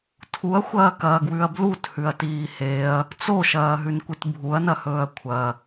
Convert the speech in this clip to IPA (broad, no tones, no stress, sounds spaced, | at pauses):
tʰ u ɐ̯ xʷ ɐː k ɐː ɡ w ʉ ɐ̯ b l u t h ʉ ɐ̯ t iː h e ɐ̯ | t͡s o ʃ ɐː ɦ ʉ n kʷ ɨ t bʱ u ɐ̯ n ɐ h ɵː ɐ̯ kʷʰ ɐ